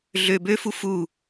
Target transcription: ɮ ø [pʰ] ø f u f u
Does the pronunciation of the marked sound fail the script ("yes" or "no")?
yes